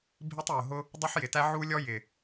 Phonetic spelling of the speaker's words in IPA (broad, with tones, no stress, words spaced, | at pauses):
bʱi˥tˤjʊ˨˩ɦʊ˥ | dˤu˥ħjɪ˨˩tæ˥ ʕu˥ lʲɔ˥jɪ˨˩